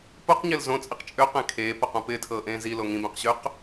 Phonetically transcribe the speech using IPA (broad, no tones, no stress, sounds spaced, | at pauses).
p o q ɲ ɪː l z õ t͡sʼ i q t͡ʃʼ ø q ẽ kʰ eː p ʌ q õ p ɪː tʰ ɤː ʔ ẽː z i l o ŋ ĩ b ẽ q ɕ ø q